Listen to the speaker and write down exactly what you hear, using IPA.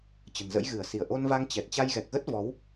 t͡ɕ ə̤˨˩ n z ə̰˧˥ j ɣ ɨ˧˩ ə̯ s i˧˩ ə̯ ʔ o˧ n v a˧ ŋ t͡ɕ ɛ˨˩ t̚ t͡ɕ a˧ j ɣ ɛ˨˩ k̚ ɣ ə˦˥ t̚ v ɔ˨˦ w

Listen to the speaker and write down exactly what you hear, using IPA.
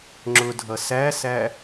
ŋ͡ǁ ʊ dʱ ʌ s æ s æ

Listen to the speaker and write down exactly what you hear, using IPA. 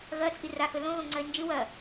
ɣ ɐ t͡sʼ i r a x ɵ l õ ɣ õ ŋ͡ǀ ɐ e̯ n d͡ʒ ɨ w ɐ

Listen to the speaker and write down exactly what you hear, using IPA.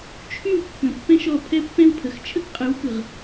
t͡ʃʰ y˦˨ w kː ə̃˨ pː ɛ̃˦ ʃ ɔ˦˨ pʰ ɛ˦ pː ɛ̃˦ w pʰ ə˨ x t͡ʃʰ ə˦ k qʼ ɯ˨˦ w k ɯ˨ ʁ

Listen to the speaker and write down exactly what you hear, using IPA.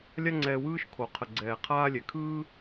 lʲ a˦ ŋ͡ǀ ɛː˧ w ɯː˦ ʃ kʰ o˨ qʰ ə˨ ɡ͡ǀ ɛː˨ qʰ aː˦ lʲ ɛ˨ kʰ ɯː˦

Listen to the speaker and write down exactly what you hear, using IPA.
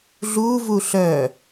ɮ u v u ɬ œ

